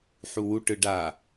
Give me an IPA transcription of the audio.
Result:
ħ u w u ʈ ɯ ɖ a

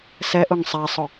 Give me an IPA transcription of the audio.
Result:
s ɛ ʔ ʊ ŋ sˤ ɛ sˤ ʊ

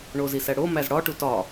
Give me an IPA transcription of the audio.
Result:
ɳ o z i s æ ɽ o m æ z ɽ ɒ ʈ u t ɒ

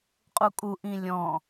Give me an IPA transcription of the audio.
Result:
qʼ u kʼ u ʔ ĩ lʲ ɔ̃

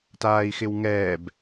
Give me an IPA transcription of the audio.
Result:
t aː i̯ x ɪ w ŋ ɛː b

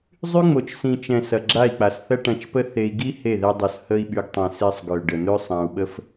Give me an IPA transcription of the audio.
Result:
zˤ y˦ ŋ͡m o˨ t͡ʃ s ĩ˨ t͡ʃ ɛ̃˨ s ɐ˨ ɡ͡ǁ a˦˨ i̯ k͡p a˨ s θ ɐ˦ ʈ ɐ̃˧ t͡ʃ p ə˦ θ e˧ i̯ ɡ i˦ h e˦˨ ð ɛ˧ dˤ u˨ s h ə˧ i̯ ɓ y˨ ɡ tˤ ɛ̃˨ s e˧ sˤ ɡ ø˨ ɖ ə˨ n̪ ø˦ sˤ ã˧ u̯ ɓ ə˦ f

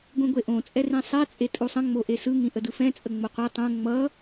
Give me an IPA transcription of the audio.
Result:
ɡʷ ĩ ɡʷ e ʔ õ t͡sʼ ɛ r ĩ sˤ e t͡sʼ e tʼ u sˤ ə̃ ŋ͡m o ʔ e s ɯ ŋ ĩ ʔ ə d ɯ f ɛ̃ t͡sʼ ə ŋ͡m o qʷ e tˤ õ ŋ͡m ʌ

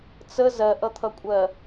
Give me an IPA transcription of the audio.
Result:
t͡s ə z ɜ ʔ ʌ t̪ʰ ʌ kʷʼ ɜ

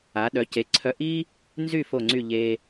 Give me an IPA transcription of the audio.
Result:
a˩˧ ɗ œ˩˧ c e˩˧ ǀʰ œ˧ ʔ i˥ | n z y˥˧ f o˧˩ ŋ͡ǀ y˧˩ ʎ e˧

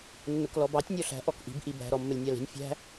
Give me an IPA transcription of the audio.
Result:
nː ʊ k l ɔ b ɑ tʲ nʲ ɔ ɬ æ̤ ʔ ɔ k ʔ i̤ b ʔ i b æ̤ ɾ ɔ mː ə lʲ nʲ ɑ l i̤ nʲ fʲ æ̤

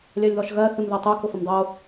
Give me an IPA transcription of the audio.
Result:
lʲ ɜ lʲ ð ɔ ʃ ɣ ɜ θ ɨ m ð ɜ tˤ u k ʊ f ɐ m dˤ o

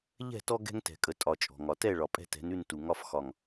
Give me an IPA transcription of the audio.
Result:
ʎ ɛ̤˦˨ t ɔ˦ ɡ ɛ̤˦ ŋ t ɛ̤˨ kʼ ə˨ tʼ ɒ˨ t͡ʃʼ ɔ̤˨ ŋ ɒ˨ t ɛ˦˨ ɭ ɒ˨ pʼ ɛ̤˦ t ɛ̤˨˦ n ʉ˦˨ n t u˨ ŋ ɒ˦ f x ɒ˨ ŋ

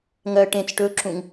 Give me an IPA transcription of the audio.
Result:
ŋ ɜ ʈ ẽ t͡s ʈ ɵ ǁ ũ ŋ

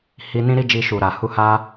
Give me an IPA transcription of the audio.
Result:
h i˧ n ĩ˦ ɾ i˦ d͡ʒ i˧ ʃ u˨ ɾ a˨ h u˧ h a˦

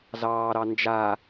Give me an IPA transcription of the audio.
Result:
z ɑː ɾ ɑ n d͡ʒ a

